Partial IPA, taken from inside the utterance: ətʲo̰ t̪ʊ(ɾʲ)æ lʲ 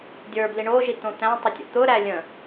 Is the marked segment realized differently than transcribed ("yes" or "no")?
yes